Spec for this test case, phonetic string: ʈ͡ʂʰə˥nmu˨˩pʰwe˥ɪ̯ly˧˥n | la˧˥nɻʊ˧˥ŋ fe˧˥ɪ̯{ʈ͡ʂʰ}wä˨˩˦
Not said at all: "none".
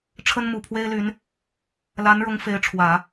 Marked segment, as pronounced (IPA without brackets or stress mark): ʈ͡ʂʰ